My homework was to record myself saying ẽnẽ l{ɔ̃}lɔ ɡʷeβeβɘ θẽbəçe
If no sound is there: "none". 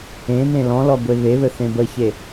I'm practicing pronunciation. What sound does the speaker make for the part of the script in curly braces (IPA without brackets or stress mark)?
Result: ɔ̃